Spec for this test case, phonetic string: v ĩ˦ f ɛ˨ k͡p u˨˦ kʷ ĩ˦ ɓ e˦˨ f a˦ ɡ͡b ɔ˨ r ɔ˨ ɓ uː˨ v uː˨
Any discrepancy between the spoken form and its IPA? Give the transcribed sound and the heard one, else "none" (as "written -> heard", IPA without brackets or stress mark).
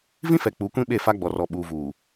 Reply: none